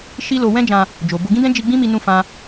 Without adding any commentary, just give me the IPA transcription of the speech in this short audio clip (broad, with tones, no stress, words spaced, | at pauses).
ʃi˦lo˧ wɛ̃˦d͡ʒã˧ | d͡ʒo˨bo˧ ɡĩ˦dɛ̃˦ d͡ʒi˧ ɡ͡bĩ˦mi˧nũ˧ fã˦